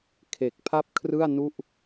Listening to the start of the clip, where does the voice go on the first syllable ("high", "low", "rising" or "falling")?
low